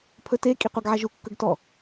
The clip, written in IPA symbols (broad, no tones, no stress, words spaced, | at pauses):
pʰɵte kʼiqʷæɡʕæʒu kːɵɡtɔ